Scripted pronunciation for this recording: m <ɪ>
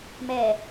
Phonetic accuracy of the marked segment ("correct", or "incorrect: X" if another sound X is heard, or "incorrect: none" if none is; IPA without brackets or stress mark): incorrect: ɛ